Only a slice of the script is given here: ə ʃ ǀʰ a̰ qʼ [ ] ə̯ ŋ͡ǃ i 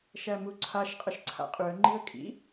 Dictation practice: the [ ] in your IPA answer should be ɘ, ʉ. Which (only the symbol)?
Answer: ʉ